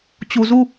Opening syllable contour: low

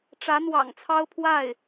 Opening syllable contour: rising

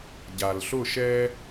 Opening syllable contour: low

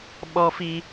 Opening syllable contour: high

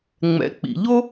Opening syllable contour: low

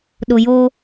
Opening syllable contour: low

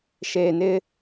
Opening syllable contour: low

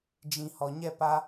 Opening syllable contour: low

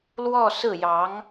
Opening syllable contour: falling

